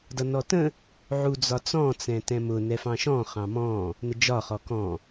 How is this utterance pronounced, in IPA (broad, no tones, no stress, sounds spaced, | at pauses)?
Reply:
d ʌ n ɔ t ə̃ | ʕ u d͡z ɒ t͡s ɔ̃ t͡s ɛ̃ t ɛ̃ m ʊ n ɛ f ɑ̃ ʃ ɔ̃ χ ɑ̃ m ɔ̃ | n ə d͡ʒ ɒ χ ɔ k ɔ̃